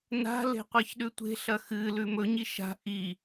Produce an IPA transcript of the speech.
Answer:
n a̤ l e̤ qʷ a ç ɗ ʉ tʷ e̤ ɬ ɐ x ɨ l ʉ m ɵ ɲ i ʃ a̤ ʔ i

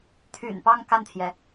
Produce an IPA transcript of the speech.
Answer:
t̪ʰ y̰˨˩ n p ɑ˥˧ ŋ k a˥˩ n t̪ʰ j ɛ˩

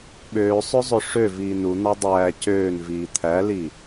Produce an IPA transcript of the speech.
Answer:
ɓ øː sˤ ø zˤ ø ʂ ø v iː n u n̪ ɑ dˤ æː c øː n v iː t̪ʰ æ l i

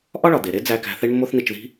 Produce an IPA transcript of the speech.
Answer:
ʔ ɒ˥ ɭ ɒ˩ d̪ e˩ ɾ e˥ d͡z æ˧ k æ̤˧ θ e˥ ɳ mː o˥ θ n i˧ t͡ʃ ð i̤˥

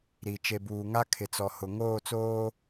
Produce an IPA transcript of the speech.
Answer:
ɾ i˨ t͡ʃ e˨ b uː˨ ŋ a˦ kʰ ɪ˨ t͡s ɔ˨ h ʊ˨ ŋ oː˦˨ t͡s oː˦

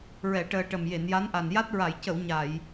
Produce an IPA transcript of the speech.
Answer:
ɹ ɛ˨˩˨ ʈ əː˨˩ ʈ ə˨˩ m j e˨˩˨ n j a˧˥ n ʔ a˨˩ n j a˦˥ t̚ ɹ a˨˩˨ j c ə˨˩˨ w ɲ a˨˩˨ j

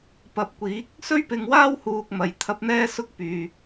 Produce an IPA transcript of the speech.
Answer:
p ɐ˨˥ p̚ kʷ iː˨˥ k̚ | s ɵ˥ ɥ p ɪ˧ ŋ w aː˥ w h uː˧ k̚ m ɐ˨ j t̪ʰ ɐ˧ p̚ n̪ ɛː˥ s ʊ˥ k̚ p yː˨

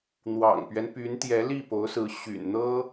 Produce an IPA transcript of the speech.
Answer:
n̪ w ɑ̰˨˩ ŋ p ɥ ɛ˦ n p y˧˥ n t̪ j ɛ˧˥ l i˥˩ p o˧˥ ʊ̯ s ɹ̩˧˥ ɕ y̰˨˩ n n̪ ɤ˥

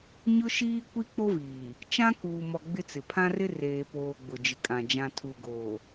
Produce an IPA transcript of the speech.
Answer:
ɲ ʊ˦ ʃ iː˦ kʷ i˦ k͡p o˦ v iː˨ | t͡ʃ ã˦ k uː˨ m ɔ˨ ɡ͡b ɪ˦ t͡s ɪ˨ pʰ ã˦ r ɪ˦ r eː˨ p oː˨ ɡ͡b ʊ˨ d͡ʒ ɪ˨ kʼ ã˨ d͡ʒ ã˨ tʰ u˨ ɡ oː˨

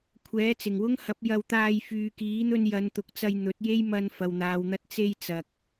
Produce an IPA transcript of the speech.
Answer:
kʷʰ ɛː˨˥ t͡s ɪ˨˩ ŋ w ʊ˥ ŋ h ɐ˨˥ p̚ j ɐ˧ w t̪ aː˧ j f yː˨ k iː˨˥ n̪ ɵ˧ n j ɐ˨˧ n t̪ ʊ˨˥ k̚ t͡s ɐ˧ j n̪ ɵ˨˥ t̚ j e˥ j m ɐ˧ n f ɐ˨ w n̪ aː˨ w n̪ ɐ˧ t̚ t͡s e˧ j t͡s ɐ˨ k̚

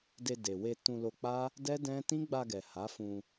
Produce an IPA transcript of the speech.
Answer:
d e˧ d e˨ w e˧ t ũ˧ l o˧ k͡p a˦ | d ɛ˦ d ɛ̃˦ t ĩ˦ ɡ͡b a˧ ɡ ɛ˨ h a˨˦ f ũ˧

